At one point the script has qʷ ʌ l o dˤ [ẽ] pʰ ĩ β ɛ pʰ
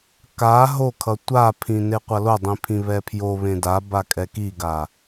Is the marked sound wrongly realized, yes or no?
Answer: yes